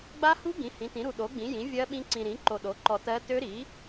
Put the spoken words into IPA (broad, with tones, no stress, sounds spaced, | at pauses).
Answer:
ɡ͡b a˦˥ h u˦˥ ɡ ĩ˨˥ h ĩ˨˥ t ĩ˨˥ ɾ u˧ ɗ o˨˥ ɡ͡b ĩ˨˥ j ĩ˨˥ vʲ ɜ˦˥ ɓ ĩ˦˥ ǀ ĩ˧ ɾ ĩ˨˥ ǃ o˧ ɗ o˨˥ ǃ ɔ˧ t ɜ˦˥ t ø˦˥ ɾ i˨˥